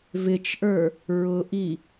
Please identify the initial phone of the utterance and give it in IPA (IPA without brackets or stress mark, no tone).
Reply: v